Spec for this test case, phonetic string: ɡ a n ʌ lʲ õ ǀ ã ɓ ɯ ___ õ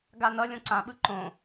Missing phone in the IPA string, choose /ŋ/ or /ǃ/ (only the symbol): ǃ